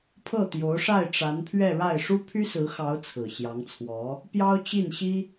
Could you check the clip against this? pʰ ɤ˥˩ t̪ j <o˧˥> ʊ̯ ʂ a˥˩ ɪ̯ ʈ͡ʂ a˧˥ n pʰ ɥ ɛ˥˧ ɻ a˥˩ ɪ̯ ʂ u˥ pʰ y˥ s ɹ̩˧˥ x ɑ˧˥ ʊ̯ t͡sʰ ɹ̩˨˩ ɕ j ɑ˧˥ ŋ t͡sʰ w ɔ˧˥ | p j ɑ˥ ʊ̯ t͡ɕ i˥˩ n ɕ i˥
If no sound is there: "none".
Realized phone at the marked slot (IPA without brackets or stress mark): o˧˥